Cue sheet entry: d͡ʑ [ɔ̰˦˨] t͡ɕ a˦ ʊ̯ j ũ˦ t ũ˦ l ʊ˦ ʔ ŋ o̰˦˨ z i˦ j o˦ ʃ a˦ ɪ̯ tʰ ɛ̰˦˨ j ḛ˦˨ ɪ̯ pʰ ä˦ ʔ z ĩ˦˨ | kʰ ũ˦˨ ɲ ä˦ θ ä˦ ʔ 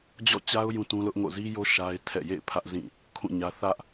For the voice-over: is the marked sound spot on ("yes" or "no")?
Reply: yes